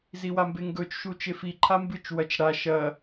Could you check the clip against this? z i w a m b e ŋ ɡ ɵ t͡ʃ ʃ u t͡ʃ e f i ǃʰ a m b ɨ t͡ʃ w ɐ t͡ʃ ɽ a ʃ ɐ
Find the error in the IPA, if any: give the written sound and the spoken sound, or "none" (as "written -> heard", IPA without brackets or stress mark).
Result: none